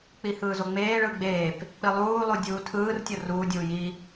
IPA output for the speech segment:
k͡p i h ɯː z o ŋ͡m eː ɭ ɯ ɡ͡b eː p | k͡p i lˠ uː lˠ u dʲ uː tʰ ɯː r tʲ ɤ r uː dʲ uː j i

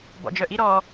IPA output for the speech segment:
b ɔ̰ d͡ʒ œ ʔ i ɾ ɔ

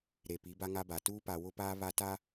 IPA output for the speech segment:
ɾ e˨ p i˨˦ b a˦ ŋ a˦ b a˨ t uː˦ p a˨ w ʊ˦ p aː˦ β a˦ t a˦

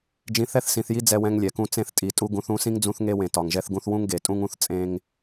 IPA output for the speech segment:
d͡ʒ ĩ˨ θ ɛ˦˨ θ s ĩ˨ θ j i˦ d͡z ɛ˦ w ɛ̃˦ ŋ lʲ ɛ˨ k ũ˦ t͡s ẽ˦ θ tʼ i˨ tʼ u˦ ɡ ũ˨˦ θ ũ˨˦ s ĩ˦ ŋ d͡z ũ˦ θ ŋ e˦ w ẽ˨ t ɒ˨ ŋ ʒ ɛ˦ θ ɡ ũ˦ θ w ũ˦ ŋ ɡ e˨ tʼ ũ˦ ŋ ũ˦ θ t͡sʼ ẽ˦ ŋ

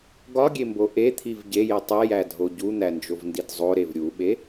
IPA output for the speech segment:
ɡ ɒ ɡʲ e m b o ʔ e t̪ʰ i v ɟ e j i tˤ e j æ dʱ o ɟ u n̪ æ n d͡ʒ o v n d i d zˤ o ɾ e v ɾʲ u ɓ e

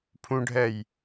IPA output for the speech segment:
pʰ ũ ɖʱ ɛ j

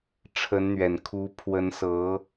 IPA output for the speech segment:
ʈ͡ʂʰ ə˧˥ n n̪ ɥ ɛ˨˩ n kʰ u˧˥ pʰ w ə˧˥ n s ɤ˧˥

